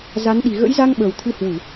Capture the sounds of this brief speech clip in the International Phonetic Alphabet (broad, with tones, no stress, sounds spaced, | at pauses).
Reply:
z a˨˦ n ɗ i˨˩ ɣ ə̰˧˥ j z a˧ ŋ ɓ əː˨˩ w t̪ʰ ɨ˧ h w u˧˩˨